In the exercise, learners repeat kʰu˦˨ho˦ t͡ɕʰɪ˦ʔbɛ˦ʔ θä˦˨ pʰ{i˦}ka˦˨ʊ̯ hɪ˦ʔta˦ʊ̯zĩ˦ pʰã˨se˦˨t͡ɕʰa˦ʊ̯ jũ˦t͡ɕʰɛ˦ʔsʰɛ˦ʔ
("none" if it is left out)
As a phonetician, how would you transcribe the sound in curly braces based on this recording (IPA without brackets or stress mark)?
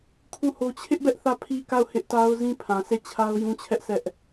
i˦